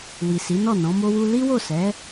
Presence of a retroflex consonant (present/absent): absent